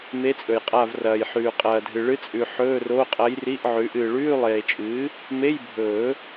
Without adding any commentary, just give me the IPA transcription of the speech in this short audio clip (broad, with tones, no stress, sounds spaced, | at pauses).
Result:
m e˧˥ t͡sʼ ɵ˨ j qʼ a˦˨ v r ɐː˨ j ħ ʉː˨ qʼ ɐː˨ dʱ ɨ˨ ɭ ɨ˧˥ t͡sʼ ʉ˨ ħ ɵː˧˥˧ r o˧˥˧ qʼ ɐ˧˥ j r i˧˥˧ ʔ ʕ ʉ˩˥ ʔ ɨː˨ ɭ ʉː˧˥˧ lˠ eː˨ t͡ʃʼ ɨː˩˥ | m e˧˥˧ j bʱ ɵː˨˩˦